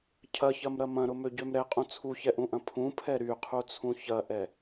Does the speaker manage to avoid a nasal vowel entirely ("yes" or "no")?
no